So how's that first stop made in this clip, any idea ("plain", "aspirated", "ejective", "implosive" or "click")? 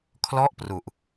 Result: aspirated